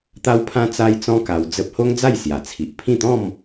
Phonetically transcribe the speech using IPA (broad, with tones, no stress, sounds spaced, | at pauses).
t̪ a˦ w pʰ ã˦ t͡s a˦ j t͡s ɔ̃˦ k a˧ w d͡z ə˦ p̚ h o˦ ŋ d͡z a˥˧ j s j a˨˩ t͡sʰ i˨ ʔ pʰ ĩ˥˧ t̪ ɔ̃˥˧ m